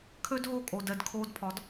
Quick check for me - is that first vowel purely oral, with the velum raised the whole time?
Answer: yes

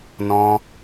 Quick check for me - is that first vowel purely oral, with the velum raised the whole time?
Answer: no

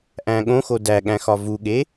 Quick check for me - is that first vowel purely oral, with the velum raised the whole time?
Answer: no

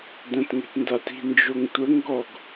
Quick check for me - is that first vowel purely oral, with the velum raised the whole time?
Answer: no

